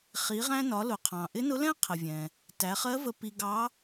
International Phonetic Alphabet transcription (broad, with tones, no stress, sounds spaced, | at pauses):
χ i˩˧ ʁ æ̃˧ n ɒ˩˧ l ʊ˩ qʰ ɑ̃˩ ʔ ɪ˧˥ n ʊ˧˥ l ɛ̃˥ qʰ ə˩ vʲ ɛ̃˩ | t æ˩˧ χ ɜ˧˥ v ə˧ p i˧ ɡ ɑ˧˥